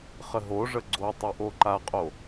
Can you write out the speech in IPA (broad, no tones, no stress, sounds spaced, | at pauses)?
χ ə ɦ o ʐ ə ɡ͡ǀ o tˤ i ʔ o ǃ a qʼ o